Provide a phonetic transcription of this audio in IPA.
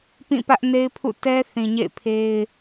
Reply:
p ĩ˦˨ p ä˦ ʔ n e˦ ɪ̯ pʰ ṵ˦˨ t ɛ˦ θ ĩ˨ ɲ ḛ˦˨ ɪ̯ pʰ e˦ ɪ̯

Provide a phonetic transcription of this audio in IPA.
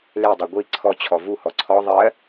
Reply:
l e dˤ e ɡʷ i ǀʰ ɔ t͡ɕʰ ɔ v u h ɔ ǀʰ ɔ ðˤ ɜ

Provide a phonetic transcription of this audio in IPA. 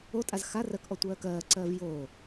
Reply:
o tʼ a z x a r ɜ k ʔ ɔ tʷ ɜː k ɜː ǀ ɜː v j oː

